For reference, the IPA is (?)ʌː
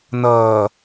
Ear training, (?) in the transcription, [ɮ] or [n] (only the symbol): n